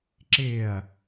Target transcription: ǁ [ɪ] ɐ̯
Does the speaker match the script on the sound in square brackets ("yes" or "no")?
yes